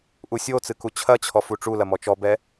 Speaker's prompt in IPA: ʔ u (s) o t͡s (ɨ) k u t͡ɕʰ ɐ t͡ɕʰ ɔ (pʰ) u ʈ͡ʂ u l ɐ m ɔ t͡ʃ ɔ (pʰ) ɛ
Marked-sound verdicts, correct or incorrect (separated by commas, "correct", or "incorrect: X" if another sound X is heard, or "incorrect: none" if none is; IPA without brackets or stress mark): incorrect: sʲ, correct, incorrect: f, incorrect: b